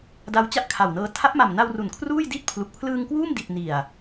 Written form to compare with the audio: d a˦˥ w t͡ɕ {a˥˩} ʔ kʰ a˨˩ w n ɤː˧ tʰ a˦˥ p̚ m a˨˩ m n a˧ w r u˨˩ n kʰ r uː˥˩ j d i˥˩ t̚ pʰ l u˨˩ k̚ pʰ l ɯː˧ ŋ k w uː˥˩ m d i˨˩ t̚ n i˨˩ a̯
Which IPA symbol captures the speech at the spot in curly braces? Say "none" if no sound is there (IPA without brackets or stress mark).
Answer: a˥˩